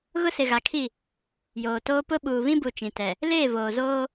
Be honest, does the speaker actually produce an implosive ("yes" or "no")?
yes